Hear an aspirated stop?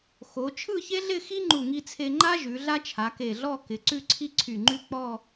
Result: yes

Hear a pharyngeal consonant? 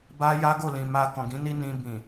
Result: no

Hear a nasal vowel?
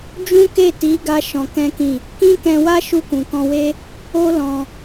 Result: yes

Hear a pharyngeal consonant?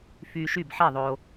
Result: yes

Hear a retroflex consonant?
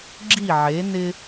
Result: no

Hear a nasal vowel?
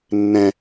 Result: yes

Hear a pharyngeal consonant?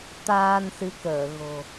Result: no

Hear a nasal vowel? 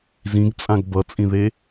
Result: yes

